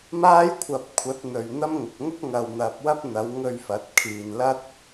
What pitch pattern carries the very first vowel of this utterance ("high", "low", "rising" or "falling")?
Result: high